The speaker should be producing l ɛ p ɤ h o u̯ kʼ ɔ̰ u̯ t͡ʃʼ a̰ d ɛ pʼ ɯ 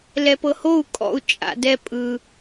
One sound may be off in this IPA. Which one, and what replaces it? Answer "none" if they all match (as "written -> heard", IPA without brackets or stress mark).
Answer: none